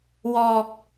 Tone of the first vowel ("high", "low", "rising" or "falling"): low